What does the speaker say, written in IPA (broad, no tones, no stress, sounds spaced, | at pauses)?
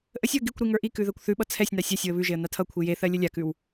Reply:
ʔ ə sʲ w ə ɡ i kʷ ɾ i ŋ ə˞ ʔ i k ʉ ð ɜ kʷ θ ʉ ɓ ʌ t͡sʰ ɛ sʲ n a sʲ a sʲ w ə β ʉ ʒ e ə̯ n a tʰ ʌ kʷʰ i j e θ ɜ lʲ ə lʲ a k ʉ w